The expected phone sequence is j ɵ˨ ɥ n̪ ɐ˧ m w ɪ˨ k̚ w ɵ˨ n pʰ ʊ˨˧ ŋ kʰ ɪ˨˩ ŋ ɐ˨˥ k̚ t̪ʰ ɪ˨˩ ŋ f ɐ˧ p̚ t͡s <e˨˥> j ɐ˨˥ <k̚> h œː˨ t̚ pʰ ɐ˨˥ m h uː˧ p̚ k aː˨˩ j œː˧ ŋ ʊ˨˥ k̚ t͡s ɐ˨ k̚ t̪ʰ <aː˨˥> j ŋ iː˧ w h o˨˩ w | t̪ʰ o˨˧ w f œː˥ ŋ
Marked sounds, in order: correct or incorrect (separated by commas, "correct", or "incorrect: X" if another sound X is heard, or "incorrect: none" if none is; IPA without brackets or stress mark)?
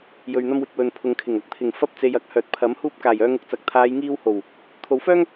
incorrect: e˨, correct, incorrect: aː˨˧